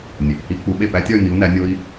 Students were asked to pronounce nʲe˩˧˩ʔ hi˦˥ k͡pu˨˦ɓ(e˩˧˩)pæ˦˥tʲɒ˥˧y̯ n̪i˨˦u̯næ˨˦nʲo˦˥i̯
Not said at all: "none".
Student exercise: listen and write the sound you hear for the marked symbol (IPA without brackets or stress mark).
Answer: e˥˩